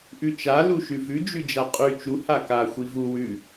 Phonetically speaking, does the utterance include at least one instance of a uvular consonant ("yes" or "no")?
yes